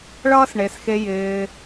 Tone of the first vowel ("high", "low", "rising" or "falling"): high